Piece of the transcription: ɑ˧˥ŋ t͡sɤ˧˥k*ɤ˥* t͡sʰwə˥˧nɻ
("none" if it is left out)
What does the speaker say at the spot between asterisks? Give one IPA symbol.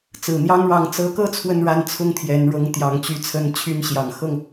ɤ˥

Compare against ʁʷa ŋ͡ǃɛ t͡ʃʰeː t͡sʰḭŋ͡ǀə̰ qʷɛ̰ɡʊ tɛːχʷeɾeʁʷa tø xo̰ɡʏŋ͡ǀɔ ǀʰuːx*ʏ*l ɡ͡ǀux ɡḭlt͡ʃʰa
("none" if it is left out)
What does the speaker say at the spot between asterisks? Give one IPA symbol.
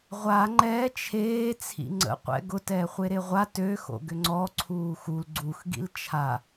u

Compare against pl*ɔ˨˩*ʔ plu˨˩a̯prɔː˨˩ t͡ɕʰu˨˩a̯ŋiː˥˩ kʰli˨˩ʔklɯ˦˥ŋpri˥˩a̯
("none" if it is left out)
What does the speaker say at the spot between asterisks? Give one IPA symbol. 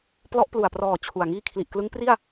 ɔ˦˥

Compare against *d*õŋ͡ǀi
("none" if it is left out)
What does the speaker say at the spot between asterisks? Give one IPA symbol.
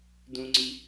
d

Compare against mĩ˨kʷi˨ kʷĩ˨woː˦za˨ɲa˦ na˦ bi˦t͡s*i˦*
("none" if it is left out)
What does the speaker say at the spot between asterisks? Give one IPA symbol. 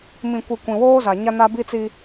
i˦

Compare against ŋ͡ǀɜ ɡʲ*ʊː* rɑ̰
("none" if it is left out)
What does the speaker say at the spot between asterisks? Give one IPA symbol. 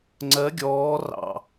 ɔː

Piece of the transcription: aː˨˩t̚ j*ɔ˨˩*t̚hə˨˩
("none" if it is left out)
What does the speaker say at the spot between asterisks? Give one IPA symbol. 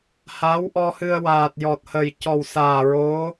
ɔ˨˩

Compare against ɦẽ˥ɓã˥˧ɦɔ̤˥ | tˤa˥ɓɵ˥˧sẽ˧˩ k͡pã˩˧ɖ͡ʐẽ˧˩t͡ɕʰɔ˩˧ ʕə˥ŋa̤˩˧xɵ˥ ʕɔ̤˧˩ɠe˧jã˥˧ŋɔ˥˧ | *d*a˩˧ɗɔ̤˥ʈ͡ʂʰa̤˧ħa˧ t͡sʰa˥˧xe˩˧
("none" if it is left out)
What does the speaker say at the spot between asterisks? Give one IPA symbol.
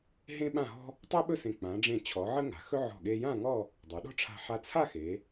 dˤ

